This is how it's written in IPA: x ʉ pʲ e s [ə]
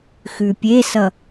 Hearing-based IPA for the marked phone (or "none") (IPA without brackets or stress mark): ʌ